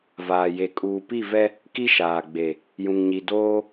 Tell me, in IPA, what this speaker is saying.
vaː˨je˨ kʼuː˨pi˦˨ vɛ˦ | ki˦ʃaː˨ ɡ͡be˨ | jũ˨ŋɲi˨ doː˦

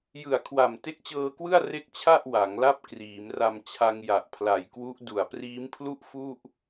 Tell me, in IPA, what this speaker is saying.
jɯ˨˩a̯kʰwa˨˩m te˦˥k̚t͡ɕɤː˧kwɯ˥˩a̯ re˥˩k̚t͡ɕʰa˥˩ʔ wa˩˦ŋla˥˩p̚ kriː˩˦mra˧m t͡ɕʰa˧ŋja˨˩ʔ pʰla˨˩jkwu˦˥ʔ du˨˩a̯priː˦˥mpʰlu˥˩ʔ fu˥˩ʔ

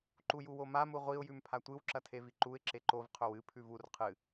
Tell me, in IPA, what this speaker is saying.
ǃujuwoma muʁʷiʊ̯ jʉmpʰatʷɨw ǁɐtʰeviǃuɪ̯ ǁeǃov qʰɵwɨ pʰʉvur qʰɨ

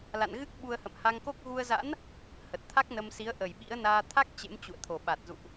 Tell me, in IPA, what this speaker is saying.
la̰˧˨n ɣɨ˦˥k̚ ɓu˧ə̯hə̰˧˨mha˧ŋko˦˥k̚ ɣu˧ə̯za̰˧˥n | hə˨˩t̚t̪ʰa˦˥k̚nə˧msi˨˦ə̯ ʔə˨˩jɓḭ˧˥ə̯ naː˧t̪ʰa˦˥k̚ t͡ɕḛ˧˥m t͡ɕṵ˧˨ə̯t̪ʰo˨˩ɓa˨˩t̚zṵ˧˨ʔ

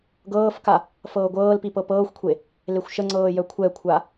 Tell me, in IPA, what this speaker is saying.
ɡɤːfka | fɤːɡʷɤːlpi pɤpɤːxʷkʷʰe | lexʷʃəŋ͡ǀɤː jœkʷʰɛkʷʰa

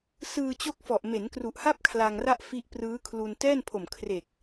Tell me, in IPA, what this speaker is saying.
sɯː˧ t͡ɕo˥˩k̚ fɔ˨˩ʔme˩˦nkru˨˩ʔha˥˩p̚ kʰla˧ŋra˥˩ʔ fi˦˥ʔprɯː˦˥ kʰlu˧n tɛː˥˩npʰo˨˩m kʰre˨˩k̚

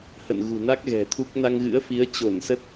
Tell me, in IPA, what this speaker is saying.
hə̰˧˨nɣṳ˨˩na˦˥k̚ ɣɛ̤˨˩t̪ʰu˦˥k̚ na˧ŋɣɨ̰˧˥ə̯fi˨˦ə̯ t͡ɕo˧˩nsə˦˥t̚

